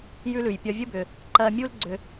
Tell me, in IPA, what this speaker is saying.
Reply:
j ʉ˥ l ʉ˩ j pʲ ɒ˧ vʲ ə˥ b ʏ˩ | ǃ ɜ˧ mʲ u˥ l ɡ͡ǀ ʏ˧

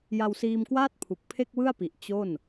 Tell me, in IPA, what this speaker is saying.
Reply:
j a˧ w s iː˧ m k w aː˥˩ t̚ pʰ u˨˩ k̚ pʰ e˥˩ k̚ w ɯ˥˩ a̯ p i˨˩ ʔ t͡ɕ o˥˩ n

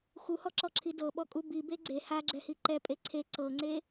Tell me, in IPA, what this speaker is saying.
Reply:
x u h ɔ ǁ ɔ ǁʰ i d ɤ ɓ ɔ kʼ u b i b e ɡ͡ǀ e h a ɡ͡ǁ ɛ h i ǃ ɛ pʼ e ǀʰ e ǀ ɤ ŋ͡ǀ e

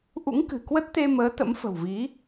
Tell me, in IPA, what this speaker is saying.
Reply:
ʔ ṵ˧˥ ŋ k ɨ̤˨˩ k w ə˦˥ t̚ t̪ e˧ m əː˨˦ t̪ ə̰˧˥ m f ə̤˨˩ w v i˨˦

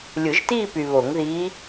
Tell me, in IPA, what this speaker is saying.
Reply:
lʲ ɯ˨˩˦ ʒ t iː˥˧ p y˨ β o˨˩˦ ŋ ð iː˧˥

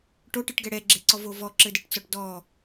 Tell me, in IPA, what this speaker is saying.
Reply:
ʈ o ʈ ɨ ʈ ɡ ɛ ɽ ɛ ɡ͡ǁ e ǀ ɔ v o v ɔ ǁ ɘ d ɘ ʈ t͡s ɔ ʈ d ɔ

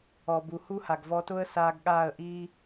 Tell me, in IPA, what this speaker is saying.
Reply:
ɔ˨ b u˨ h u˦ h a˨ ɡ v ɔ˧ t ʊ˦ ə̯ s aː˧ ɡ ɠ aː˦˨ ə̯ ʔ iː˦

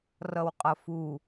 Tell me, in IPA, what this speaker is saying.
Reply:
r ʌ w qʼ ʌ f u

